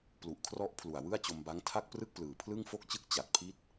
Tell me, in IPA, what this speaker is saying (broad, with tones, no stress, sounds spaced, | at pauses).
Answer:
p l u˨˩ ʔ kʰ r ɔ˦˥ ʔ pʰ l u˨˩ a̯ w ɯ˥˩ a̯ t͡ɕ o˧ m b a˦˥ ŋ tʰ a˥˩ k̚ p r ɯ˥˩ k̚ p l ɯː˨˩ pʰ l ɯ˥˩ ŋ f o˥˩ k̚ t͡ɕ ɯ˥˩ k̚ t͡ɕ a˨˩ t̚ pʰ i˥˩ t̚